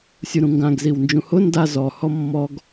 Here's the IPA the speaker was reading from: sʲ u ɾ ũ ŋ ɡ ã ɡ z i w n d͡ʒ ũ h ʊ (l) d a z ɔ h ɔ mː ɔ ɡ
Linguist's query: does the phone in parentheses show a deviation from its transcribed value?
yes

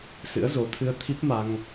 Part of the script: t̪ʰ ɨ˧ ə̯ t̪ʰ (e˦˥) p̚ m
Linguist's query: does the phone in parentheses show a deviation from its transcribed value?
yes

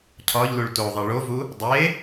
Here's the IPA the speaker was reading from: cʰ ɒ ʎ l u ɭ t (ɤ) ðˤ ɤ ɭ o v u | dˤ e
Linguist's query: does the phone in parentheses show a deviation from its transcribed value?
yes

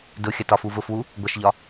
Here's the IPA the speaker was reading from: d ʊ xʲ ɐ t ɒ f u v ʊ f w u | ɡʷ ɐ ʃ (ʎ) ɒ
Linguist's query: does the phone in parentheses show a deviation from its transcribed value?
no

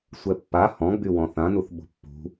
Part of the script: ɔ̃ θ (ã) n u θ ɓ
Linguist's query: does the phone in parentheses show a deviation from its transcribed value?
no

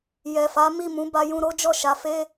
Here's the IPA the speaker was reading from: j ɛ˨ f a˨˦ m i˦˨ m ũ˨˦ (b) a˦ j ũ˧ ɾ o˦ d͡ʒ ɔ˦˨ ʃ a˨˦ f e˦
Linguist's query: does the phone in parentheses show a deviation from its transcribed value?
no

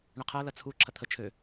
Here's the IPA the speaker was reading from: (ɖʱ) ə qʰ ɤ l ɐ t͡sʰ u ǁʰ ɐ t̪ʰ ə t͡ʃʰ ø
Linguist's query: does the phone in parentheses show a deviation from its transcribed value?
yes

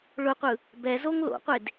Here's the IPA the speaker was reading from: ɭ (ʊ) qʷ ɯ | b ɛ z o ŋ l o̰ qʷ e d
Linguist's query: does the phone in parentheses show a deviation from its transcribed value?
no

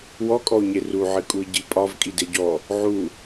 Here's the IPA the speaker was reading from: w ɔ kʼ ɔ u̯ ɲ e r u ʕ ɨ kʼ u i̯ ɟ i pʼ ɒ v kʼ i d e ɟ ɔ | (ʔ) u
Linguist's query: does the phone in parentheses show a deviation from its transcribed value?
yes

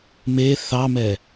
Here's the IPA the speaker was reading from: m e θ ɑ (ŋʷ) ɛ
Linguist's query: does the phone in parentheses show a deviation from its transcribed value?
yes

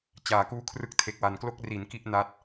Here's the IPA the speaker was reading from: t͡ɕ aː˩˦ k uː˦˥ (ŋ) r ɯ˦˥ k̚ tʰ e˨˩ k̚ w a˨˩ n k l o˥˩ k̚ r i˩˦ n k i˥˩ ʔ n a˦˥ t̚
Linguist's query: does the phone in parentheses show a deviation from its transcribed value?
yes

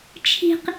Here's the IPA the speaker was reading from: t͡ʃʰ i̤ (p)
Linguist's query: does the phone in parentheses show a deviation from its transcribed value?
yes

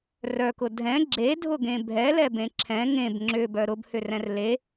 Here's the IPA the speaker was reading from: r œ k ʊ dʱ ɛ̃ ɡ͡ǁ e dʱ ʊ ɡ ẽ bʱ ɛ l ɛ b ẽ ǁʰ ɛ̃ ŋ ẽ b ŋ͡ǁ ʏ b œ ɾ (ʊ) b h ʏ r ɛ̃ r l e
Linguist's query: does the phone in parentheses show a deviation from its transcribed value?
no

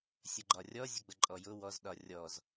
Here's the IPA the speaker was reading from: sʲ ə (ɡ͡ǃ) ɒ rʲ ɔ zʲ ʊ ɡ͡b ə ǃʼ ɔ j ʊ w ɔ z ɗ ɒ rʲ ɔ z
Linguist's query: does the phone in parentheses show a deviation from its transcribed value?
no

